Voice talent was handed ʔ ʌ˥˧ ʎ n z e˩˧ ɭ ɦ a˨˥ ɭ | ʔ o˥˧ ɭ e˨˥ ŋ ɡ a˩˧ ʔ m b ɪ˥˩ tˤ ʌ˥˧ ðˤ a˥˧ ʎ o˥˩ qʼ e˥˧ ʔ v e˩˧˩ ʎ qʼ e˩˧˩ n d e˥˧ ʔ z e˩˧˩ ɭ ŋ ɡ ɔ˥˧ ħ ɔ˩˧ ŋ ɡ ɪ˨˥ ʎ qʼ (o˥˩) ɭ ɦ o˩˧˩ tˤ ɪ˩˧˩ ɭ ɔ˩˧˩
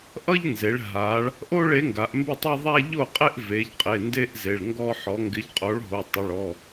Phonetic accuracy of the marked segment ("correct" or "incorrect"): incorrect